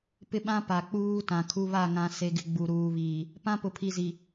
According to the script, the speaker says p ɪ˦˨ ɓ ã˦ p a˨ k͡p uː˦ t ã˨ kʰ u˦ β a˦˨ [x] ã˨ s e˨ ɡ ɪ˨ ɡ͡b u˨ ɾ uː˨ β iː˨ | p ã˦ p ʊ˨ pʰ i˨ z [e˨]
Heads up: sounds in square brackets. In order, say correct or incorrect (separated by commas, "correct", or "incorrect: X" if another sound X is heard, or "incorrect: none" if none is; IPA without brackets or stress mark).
incorrect: ŋ, incorrect: i˨